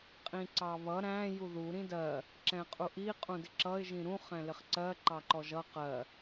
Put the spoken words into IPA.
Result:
qʼ ĩ ǀ ɑ β ʌ ɾ æ̃ j u ð u ɾ ĩ d ɜ | ǁ ɛ̃ qʼ u ʔ i qʼ ũ d ɪ ǁ ʌ ɪ̯ ʒ ĩ ɾ ũ χ ɛ̃ l ɪ χ ǀ ɜ ǃ ɑ ǃ ɔ ʒ ʌ q ɜ

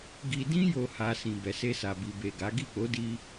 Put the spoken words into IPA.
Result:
ɡ i˨ d ĩ˧ j o˨ h a˨ s ĩ˨ b ɛ˨ s e˧ s a˨ b i˨ b e˨ ɡ a˨˦ ɡ i˦˨ k͡p o˨˦ d i˧

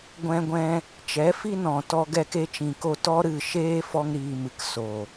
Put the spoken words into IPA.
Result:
ɡʷ ɛ̃˧ ɡʷ ɛ̃˧ | t͡ʃ ɛ˨˦ f i˦ n ɔ̃˨ t ɔ˧ ɡ ɛ˧ k e˧ t͡ʃ ĩ˨ k o˧ t ɔ˦ ɾ ɨ˦˨ ʃ eː˦ f ɔ˦ ŋ ɾ iː˧ m ɨ˨ k s o˨

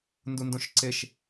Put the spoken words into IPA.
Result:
n d u n d õ ʃ ǀ e ʃ

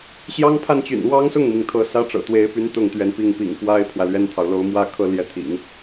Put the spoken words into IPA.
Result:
ɕ j ɑ˥ ŋ pʰ a˥˩ n t͡ɕ y̰˨˩ n w ɑ˥ ŋ s ʊ˥˩ ŋ m i˩ ŋ t̪ʰ ɤ˧˥ s ä˥ ʈ͡ʂ ɤ̰˨˩ t̪ w e˧˥ ɪ̯ p y˧˥ n t̪ ʊ˥˩ ŋ t̪ ɥ ɛ˧˥ n p i˥˩ ŋ p ḭ˨˩ ŋ f w a˥ ɪ̯ pʰ w ä˨ l ɥ ɛ˥ n t̪ʰ ɑ˨ ʊ̯ l o˥ ʊ̯ m w ä˥˧ kʰ ɤ˥˧ l j ɛ˥˩ t̪ʰ ḭ˨˩˦ ŋ

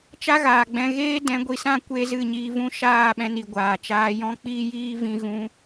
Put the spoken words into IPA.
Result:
t͡ʃ a˦ ɣ aː˨ ɡ͡b ɛ̃˧ ɣ eː˦ d ɛ̃˨˦ ɡʷ i˨ s ã˦ kʷ e˧ z ɨ˦˨ ɲ iː˧ v ũ˦ ʃ aː˦˨ ɓ ɛ̃˧ n i˨ ɡʷ aː˨ t͡ʃ aː˧ j ɔ̃˦ k͡p iː˦ j iː˦ v ĩ˧ ɣ ũ˧

